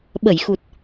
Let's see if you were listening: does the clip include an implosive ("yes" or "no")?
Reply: yes